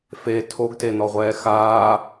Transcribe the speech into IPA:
f e tʰ o ɡ t e n ɔ ʁʷ ɛː x aː

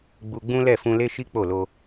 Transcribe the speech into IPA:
ɡ͡b u˧ ɡ͡b ũ˦ l ɛ˦˨ f ũ˧ l e˦ ʃ i˦ k͡p o˦˨ l o˧

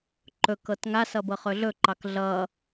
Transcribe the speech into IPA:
ǃ ɵ k ɤ t ŋ a s ʌ b ɤ χ ɵ ɮ ɵ ǃ ɑ k ɮ ʌ

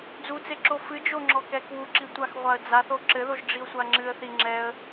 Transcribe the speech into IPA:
d͡z u t͡s e ǁ o f ɨ d͡ʒ o ŋ͡ǁ ɔ k ɛ k w u ǁ i tʷ a x ʁʷ a ə̯ d͡z a θ o ǁ ɘ ð o ʒ ɖ͡ʐ i ʊ̯ sʷ a ŋ͡ǁ ɨ ə̯ θ i ŋ͡ǁ ɛ ə̯

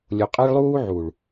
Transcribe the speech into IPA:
lʲ o˨ qʼ ɛ˦ ɭ lˠ uː˦ ʕ u˨ ɭ

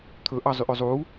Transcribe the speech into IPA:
t̪ʰ ɵ ʔ ɑ zˤ y ʔ ø zˤ u

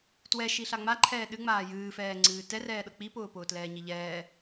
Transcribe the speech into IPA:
t w ɛ ʃ i ɬ a ŋ͡m a ǃʰ ɛː ɗ ɨ ŋ͡m aː j ɨː f ɛː ŋ͡ǀ ɨː t ɛ r ɛː ɗ ɤ k͡p i p ʊː p ʊː t l ɛː ɲ i ʎ ɛː

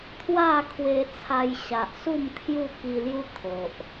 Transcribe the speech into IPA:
t̪ʰ w a˥˧ kʰ w e˧ t͡sʰ a˧ j ɕ a˨ ʔ s u˥˧ m t̪ʰ j u˥˧ k i˧ l j u˦ t̪ʰ o˨ ʔ

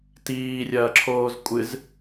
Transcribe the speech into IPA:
t iː rʲ ɐː ǁʰ oː z kʷʼ ɨ z

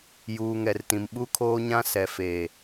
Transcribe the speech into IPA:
j uː˨ ŋ ɛ˨ r t ĩ˨ m ɓ u˦ kʰ oː˦ ɲ ã˦ s ɛ˨ f eː˨

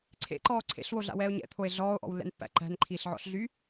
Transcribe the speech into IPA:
ǀʰ ḛ ǃ ɔː ǀʰ ḛ ɬ w o ɮ a̰ w ɛː o̯ ɲ ɛ̰ t̪ʰ o e̯ ɮ ɔː o̯ ʔ ɔ̰ w lː ɛ̰ n pː æ̰ ǃ æ̤ n ǃʰ iː ɬ ʕ ɔ̰ ɬ ɮ y

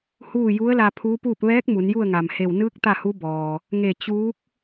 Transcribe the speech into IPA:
h uː˥˨ j u˧˥ ə̯ l a˧ pʰ uː˧˥ p uː˥˨ p̚ ʋ ɛː˧˥ k̚ m u˩˧ n j u˥˨ ə̯ ŋ a˩ m h e˧˩ w n ɯː˧˥ k̚ t̪ a˥˨ h u˧˥ b ɔː˩ | ŋ e˧˩ t͡ɕ uː˧˥ k̚

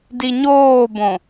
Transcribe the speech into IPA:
d i ɲ oː b õ

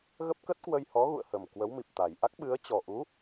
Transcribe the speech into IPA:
ɣ ə˦˥ p̚ k ə˦˥ t̚ k w ə˧ j h ɔ˨˦ ɣ ṵ˧˨ ə̯ h ə˨˩ m k w ə˨˦ w m i˨˩ p̚ t̪ a˨˩ j ʔ a˦˥ k̚ ɓ ɨ˨˦ ə̯ t͡ɕ ɔ˨˩ ʔ u˨˦

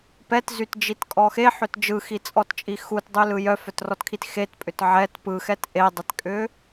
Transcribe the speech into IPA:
p ɛ t z y t d͡ʒ i t kʼ ɔ x e ħ ʏ t d͡ʒ ɯ x i t͡sʼ ɔ t t͡ʃʼ i x u t dˤ y l ɯ j œ f œ t r ɔ t kʰ i t x e t pʼ ʏ t ʕ ɛ t p ɯ x ɛ t ʔ e dˤ e t kʼ ʏ

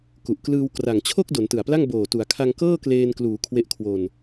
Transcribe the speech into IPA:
k u˨˩ ʔ k l ɯː˧ w k r a˨˩ ŋ t͡ɕʰ o˥˩ k̚ d o˩˦ n t ɯ˨˩ a̯ p l a˥˩ ŋ b oː˨˩ t u˩˦ a̯ kʰ a˧ ŋ k ɤː˥˩ k l eː˧ n k l uː˩˦ kʰ w e˦˥ ʔ kʰ w o˧ n

